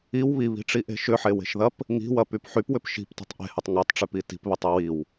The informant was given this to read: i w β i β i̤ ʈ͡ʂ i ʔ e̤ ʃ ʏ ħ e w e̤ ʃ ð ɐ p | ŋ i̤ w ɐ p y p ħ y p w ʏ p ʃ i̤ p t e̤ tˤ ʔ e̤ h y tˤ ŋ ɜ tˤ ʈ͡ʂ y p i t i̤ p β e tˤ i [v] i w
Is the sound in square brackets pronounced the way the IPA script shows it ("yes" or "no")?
no